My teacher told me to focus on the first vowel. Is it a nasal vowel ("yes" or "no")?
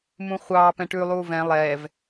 yes